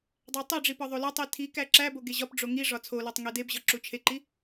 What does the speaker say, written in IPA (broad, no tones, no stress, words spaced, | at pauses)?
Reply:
dˤætˤeɖ͡ʐi pɒðˤolɒtˤi tʰi kæǁæbo ɡeʑɒpɖ͡ʐo ŋiʐɒ t͡sʰolɒtˤ ŋedebʑɒ ǁut͡ʃʰeǃi